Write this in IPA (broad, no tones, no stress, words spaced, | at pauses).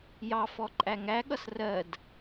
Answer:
jɑfɔ ǃʼæŋæɠʌs rɜd